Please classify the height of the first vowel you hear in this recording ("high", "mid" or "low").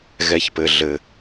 mid